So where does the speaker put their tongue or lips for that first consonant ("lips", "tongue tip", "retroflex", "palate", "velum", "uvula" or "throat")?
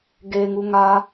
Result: velum